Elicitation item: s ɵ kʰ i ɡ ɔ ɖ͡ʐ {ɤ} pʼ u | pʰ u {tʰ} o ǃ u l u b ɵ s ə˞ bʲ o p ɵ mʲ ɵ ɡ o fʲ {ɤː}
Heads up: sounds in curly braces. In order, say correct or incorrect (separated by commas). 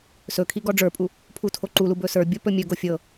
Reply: incorrect, correct, incorrect